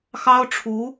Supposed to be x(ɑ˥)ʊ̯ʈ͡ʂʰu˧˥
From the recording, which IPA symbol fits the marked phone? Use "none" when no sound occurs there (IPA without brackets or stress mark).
ɑ˥